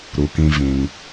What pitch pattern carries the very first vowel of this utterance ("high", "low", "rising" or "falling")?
low